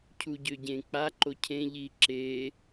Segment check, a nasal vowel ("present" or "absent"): present